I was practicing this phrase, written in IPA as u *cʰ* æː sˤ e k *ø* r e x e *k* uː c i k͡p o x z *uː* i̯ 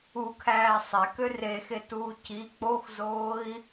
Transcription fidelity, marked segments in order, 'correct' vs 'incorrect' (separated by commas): incorrect, correct, incorrect, incorrect